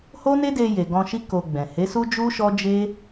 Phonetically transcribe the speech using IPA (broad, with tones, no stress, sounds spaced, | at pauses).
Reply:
h o˦ n e˦ d e˧ j e˨ ɡ ɔ̃˧ ʃ i˦ k o˧ ɡ͡b ɛ̃˨ h e˨˦ s u˦ d͡ʒ u˦ ʃ ɔ˦ d͡ʒ e˦